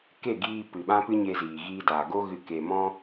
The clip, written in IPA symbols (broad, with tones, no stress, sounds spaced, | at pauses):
k e˦˨ ɡ iː˧ p ɨ˨ ɓ ã˦ p ɨ˦ ɲ e˧ z iː˨ ɣ iː˧ d aː˨ ɡ o˦ ɣ ɨ˧ k e˧ m ɔ̃˦